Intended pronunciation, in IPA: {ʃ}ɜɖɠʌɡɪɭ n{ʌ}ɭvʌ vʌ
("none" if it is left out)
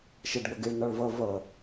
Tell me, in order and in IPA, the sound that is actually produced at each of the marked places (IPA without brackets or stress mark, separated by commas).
ʃ, ɒ